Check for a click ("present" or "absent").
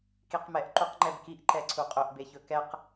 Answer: present